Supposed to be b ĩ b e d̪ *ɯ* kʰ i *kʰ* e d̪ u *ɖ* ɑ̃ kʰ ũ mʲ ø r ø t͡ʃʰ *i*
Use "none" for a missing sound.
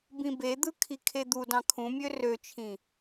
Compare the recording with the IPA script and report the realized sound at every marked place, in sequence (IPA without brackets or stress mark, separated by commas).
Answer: ɯ, kʰ, d, ĩ